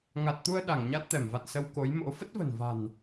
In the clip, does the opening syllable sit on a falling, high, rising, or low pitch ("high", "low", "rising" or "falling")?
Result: low